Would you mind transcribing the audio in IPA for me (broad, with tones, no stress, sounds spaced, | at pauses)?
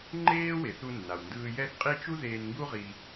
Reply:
ŋ͡ǃ eː˥ w e˩ θ u˧ nː a˩ w n d ɯː˧ j ɛ˥ θ qʼ i˥ t͡ʃ u˥ ð eː˧ n ŋ ɡ u˥ ʁ i˧